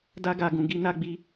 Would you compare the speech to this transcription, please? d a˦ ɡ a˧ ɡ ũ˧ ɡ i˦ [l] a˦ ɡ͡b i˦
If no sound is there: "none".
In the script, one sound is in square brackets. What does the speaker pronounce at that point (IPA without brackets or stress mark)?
n